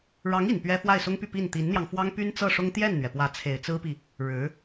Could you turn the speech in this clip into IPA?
ɻɑ˧˥ŋi˨˩n pɥɛ˥ fwa˥˩ɪ̯sʊ˥ŋpy˥˧ pi˥˩n t̪i˧˥nn̪jɑ˧ŋ fwɑ˥ŋpy˥nt͡sɤ˥˩ʂʊ˥ŋ t̪jɛ˥˩nn̪ɥɛ˩pwä˧˥ t͡sʰe˨˩ɪ̯t͡sɹ̩˥pi˨ | ɻɻ̩˧˥

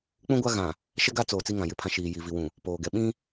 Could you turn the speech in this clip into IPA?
k͡pũ˦ɡʷa˦ ɣã˨ | ʃɛ˦ɡa˦t͡soː˨ t͡si˦ŋã˨jɪ˦˨pʰã˦ ʃiː˨ji˨ vi˨wũ˨ | poː˨ɡɛ˨ ɓĩ˦

